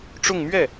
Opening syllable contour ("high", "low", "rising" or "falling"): falling